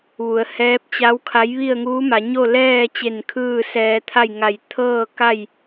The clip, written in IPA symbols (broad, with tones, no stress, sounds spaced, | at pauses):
ʋ u˩˧ ə̯ h ɛː˧˥ p̚ t͡ɕ a˧˥ w kʰ a˧˥ j ʋ i˥˨ ə̯ ŋ uː˧˥ m a˩˧ ɲ o˥˨ l ɛː˥˨ t͡ɕ e˧˩ n kʰ ɯː˥˨ s ɛː˧ t̪ʰ a˥˨ j ŋ a˧˩ j t̪ʰ ɤː˥˨ k a˥˨ j